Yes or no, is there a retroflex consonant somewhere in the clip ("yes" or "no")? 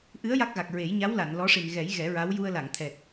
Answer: yes